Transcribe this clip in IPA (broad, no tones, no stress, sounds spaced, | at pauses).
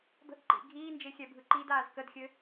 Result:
b ə̤ ʔ ǃ ḭ ɡʱ iː n d͡ʒ e xʲ ɛ bʱ ɯ ǃ i d aː z k ə d xʲ ɘ